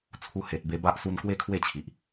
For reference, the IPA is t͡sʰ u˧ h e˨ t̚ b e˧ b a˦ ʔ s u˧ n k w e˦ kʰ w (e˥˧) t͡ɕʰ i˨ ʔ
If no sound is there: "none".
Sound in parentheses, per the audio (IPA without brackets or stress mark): e˥˧